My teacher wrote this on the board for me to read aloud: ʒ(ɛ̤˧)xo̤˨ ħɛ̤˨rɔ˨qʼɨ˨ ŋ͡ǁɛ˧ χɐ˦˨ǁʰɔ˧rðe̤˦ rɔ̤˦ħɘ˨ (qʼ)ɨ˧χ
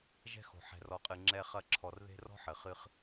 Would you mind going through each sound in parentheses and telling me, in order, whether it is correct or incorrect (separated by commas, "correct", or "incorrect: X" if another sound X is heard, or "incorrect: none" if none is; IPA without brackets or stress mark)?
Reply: correct, incorrect: χ